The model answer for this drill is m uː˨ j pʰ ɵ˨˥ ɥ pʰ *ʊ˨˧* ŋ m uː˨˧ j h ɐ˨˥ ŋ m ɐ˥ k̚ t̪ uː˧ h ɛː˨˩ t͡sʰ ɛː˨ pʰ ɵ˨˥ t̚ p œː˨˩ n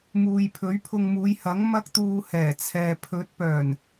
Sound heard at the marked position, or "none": ʊ˧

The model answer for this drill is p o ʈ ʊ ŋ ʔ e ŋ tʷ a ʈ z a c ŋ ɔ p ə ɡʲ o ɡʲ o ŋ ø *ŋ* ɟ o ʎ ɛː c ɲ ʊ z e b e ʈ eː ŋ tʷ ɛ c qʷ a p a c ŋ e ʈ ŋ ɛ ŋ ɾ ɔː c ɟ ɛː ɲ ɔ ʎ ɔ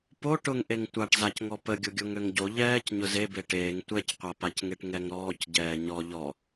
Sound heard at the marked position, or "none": ŋ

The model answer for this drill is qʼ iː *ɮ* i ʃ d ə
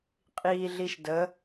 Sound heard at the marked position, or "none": ɮ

